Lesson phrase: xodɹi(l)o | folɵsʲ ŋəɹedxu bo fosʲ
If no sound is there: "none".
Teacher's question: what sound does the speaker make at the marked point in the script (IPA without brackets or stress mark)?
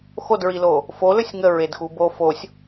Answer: l